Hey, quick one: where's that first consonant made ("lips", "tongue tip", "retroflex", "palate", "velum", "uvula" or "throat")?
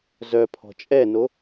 tongue tip